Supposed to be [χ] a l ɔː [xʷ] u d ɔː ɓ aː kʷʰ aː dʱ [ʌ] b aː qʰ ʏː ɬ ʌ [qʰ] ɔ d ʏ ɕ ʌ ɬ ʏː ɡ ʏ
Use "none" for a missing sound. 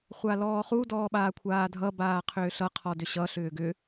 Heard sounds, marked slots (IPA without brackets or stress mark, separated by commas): χʷ, χ, ʌ, qʰ